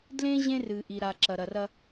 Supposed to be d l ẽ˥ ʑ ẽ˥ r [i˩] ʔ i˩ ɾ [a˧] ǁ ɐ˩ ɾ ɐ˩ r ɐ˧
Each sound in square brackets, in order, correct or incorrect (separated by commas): incorrect, incorrect